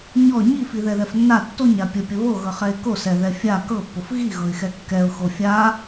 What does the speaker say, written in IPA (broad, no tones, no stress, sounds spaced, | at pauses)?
ɲ ɔ ɲ i f i ð ɛ ð ɛ f nː a tː o ɲ a pʲ ə pʲ ə β o ɣ ɤ χ ɛ ɪ̯ k o s ɛ ð ɛ fʲ a k ɤ pː o f ɣ i ɣ ɤ ɪ̯ x ɛ kː ɛ ʊ̯ x o fʲ a